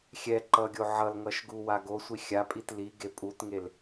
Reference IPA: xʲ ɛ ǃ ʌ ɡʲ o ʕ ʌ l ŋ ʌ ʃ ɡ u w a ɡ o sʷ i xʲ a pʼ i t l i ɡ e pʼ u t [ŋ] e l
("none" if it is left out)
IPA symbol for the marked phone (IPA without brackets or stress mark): ŋ